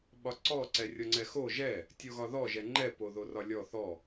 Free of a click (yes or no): no